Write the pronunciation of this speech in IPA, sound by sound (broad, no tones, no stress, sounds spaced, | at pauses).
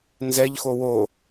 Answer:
n z ɛ ʎ x o w o